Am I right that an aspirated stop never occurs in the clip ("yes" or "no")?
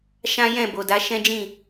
yes